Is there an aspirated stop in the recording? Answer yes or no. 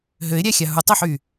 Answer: no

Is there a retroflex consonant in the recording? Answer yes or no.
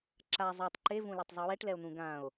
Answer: yes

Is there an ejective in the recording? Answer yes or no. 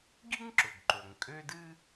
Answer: yes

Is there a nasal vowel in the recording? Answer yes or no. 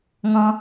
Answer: yes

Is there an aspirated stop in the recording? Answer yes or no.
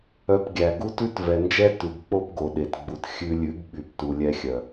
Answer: no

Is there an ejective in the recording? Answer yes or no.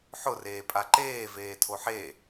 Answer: yes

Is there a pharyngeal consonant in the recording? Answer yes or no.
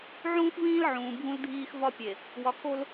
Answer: yes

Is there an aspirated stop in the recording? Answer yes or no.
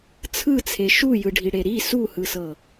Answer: yes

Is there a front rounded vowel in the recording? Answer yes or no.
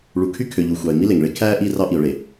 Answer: yes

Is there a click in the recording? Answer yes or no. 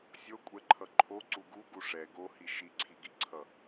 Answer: yes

